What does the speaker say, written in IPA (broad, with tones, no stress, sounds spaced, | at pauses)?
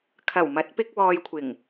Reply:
kʰ ɐ˨˩ w m ɐ˨˥ t̚ p ɪ˥ k̚ w ɔː˧ j kʷʰ ɪ˨˩ ŋ